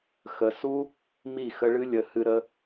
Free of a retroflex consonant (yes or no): no